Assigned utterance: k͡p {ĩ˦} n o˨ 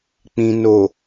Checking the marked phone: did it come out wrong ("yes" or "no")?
yes